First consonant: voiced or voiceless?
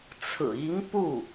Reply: voiceless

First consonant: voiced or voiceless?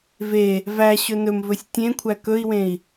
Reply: voiced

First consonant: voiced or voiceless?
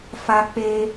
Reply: voiceless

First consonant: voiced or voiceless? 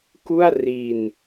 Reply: voiceless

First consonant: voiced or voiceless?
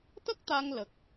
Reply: voiceless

